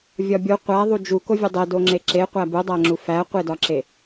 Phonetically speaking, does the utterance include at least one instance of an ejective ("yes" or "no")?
no